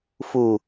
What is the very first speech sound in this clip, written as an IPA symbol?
f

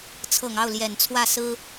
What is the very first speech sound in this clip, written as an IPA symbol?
t͡sʰ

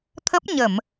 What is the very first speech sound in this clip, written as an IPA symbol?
t̪ʰ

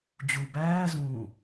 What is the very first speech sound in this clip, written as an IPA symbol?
d͡ʑ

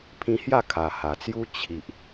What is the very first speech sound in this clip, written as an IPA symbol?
pʰ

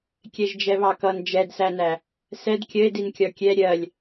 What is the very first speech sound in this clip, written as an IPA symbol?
kʲ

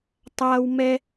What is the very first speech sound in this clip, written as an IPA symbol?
tˤ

